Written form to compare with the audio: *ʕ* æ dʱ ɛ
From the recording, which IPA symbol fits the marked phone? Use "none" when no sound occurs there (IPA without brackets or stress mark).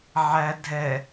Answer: ʕ